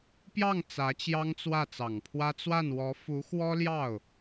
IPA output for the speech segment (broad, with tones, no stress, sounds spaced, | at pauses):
p j ɑ˥˩ ŋ t͡s ä˧˥ t͡ɕ j ɑ˥ ŋ t͡s w ä˥˩ t͡s ɑ˨˩ ŋ pʰ w ä˥ t͡s w a˥˩ n w ɔ˧˥ f u˧˥ x w ɔ˥ l j ɑ˥˩ ʊ̯